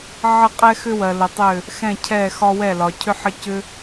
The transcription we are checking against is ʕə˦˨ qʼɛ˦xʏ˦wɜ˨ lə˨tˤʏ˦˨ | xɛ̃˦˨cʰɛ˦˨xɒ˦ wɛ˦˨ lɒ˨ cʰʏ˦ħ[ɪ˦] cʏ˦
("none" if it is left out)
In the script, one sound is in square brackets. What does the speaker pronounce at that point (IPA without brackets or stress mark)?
ə˦